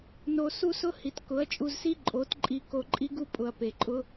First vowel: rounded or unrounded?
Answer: rounded